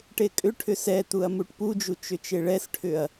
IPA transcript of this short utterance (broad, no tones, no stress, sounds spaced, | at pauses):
ʈ e kʼ ʏ ʈʰ ʏ s ɛ t̪ u ɐ̯ m u ʈ p u d͡ʒ u t͡ʃ ʏ t͡ʃ e ɭ ɛ s ʈʰ ʏ ɐ̯